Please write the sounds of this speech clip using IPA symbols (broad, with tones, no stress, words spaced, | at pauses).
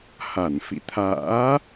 ha˧˩n fḭ˧˨t̪ʰa̰ː˧˥